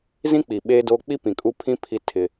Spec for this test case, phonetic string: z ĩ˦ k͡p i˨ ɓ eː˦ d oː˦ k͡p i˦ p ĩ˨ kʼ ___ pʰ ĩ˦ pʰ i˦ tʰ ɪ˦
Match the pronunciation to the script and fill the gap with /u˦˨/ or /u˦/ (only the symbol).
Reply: u˦